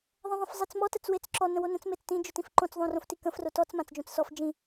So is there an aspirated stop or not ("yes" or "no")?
no